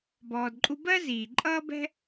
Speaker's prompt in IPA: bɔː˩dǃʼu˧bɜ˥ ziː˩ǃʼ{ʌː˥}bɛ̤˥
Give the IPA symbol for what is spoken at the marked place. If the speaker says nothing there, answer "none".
ʌː˥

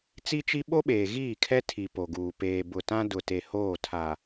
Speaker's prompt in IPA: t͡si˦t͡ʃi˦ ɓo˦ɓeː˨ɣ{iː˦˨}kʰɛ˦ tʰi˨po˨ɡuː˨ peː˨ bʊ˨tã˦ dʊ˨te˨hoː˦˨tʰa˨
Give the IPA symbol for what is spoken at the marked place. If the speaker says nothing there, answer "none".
iː˦˨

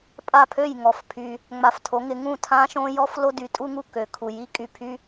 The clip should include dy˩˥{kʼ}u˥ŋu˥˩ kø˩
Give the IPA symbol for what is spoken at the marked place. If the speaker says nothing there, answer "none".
tʼ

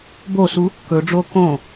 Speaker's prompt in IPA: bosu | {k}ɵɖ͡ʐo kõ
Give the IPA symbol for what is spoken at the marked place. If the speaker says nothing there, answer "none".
k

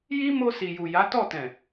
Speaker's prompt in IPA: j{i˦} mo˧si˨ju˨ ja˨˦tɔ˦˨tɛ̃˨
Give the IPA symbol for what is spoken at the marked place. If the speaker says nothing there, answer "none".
i˦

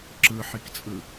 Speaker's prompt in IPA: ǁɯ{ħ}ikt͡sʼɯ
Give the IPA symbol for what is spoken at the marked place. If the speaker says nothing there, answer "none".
ħ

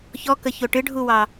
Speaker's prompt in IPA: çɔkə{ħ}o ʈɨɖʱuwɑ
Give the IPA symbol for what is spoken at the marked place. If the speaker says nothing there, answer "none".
ç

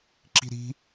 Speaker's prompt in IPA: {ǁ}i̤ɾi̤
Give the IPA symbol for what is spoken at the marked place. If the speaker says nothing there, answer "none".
ǁ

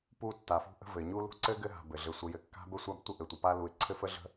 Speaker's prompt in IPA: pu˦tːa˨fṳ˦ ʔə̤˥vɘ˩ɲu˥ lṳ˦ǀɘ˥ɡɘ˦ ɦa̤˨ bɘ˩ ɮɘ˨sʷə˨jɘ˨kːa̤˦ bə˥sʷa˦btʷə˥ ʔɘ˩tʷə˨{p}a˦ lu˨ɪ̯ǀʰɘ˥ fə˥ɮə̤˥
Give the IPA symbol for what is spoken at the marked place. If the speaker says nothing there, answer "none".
p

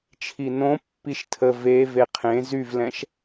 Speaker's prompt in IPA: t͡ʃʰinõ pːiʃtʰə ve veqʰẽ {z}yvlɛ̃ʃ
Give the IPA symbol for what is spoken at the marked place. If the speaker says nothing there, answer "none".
z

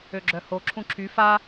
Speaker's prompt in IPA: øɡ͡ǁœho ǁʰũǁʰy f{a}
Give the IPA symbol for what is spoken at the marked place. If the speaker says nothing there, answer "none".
a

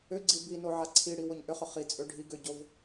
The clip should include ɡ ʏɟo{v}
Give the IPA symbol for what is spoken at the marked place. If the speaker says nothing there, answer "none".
v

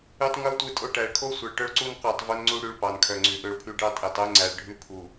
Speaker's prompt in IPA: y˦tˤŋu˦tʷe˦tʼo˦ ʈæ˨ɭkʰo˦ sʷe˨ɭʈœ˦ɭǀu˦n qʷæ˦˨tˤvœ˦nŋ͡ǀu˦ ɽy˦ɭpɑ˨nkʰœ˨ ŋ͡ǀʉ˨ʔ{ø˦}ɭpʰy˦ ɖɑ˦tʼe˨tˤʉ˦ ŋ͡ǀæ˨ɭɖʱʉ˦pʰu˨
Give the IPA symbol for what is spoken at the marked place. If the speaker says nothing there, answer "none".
ø˦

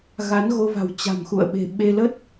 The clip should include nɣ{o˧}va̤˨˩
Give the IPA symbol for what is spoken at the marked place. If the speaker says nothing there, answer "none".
o˧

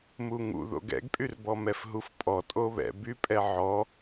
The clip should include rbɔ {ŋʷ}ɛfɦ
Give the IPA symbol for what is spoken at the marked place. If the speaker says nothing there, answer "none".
m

